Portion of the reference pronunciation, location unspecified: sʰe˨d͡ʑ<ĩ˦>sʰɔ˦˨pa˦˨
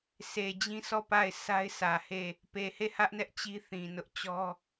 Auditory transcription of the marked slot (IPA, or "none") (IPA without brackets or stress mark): ĩ˦